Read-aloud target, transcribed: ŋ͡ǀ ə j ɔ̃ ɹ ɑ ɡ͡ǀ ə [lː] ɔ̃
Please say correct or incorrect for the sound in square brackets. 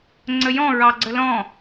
incorrect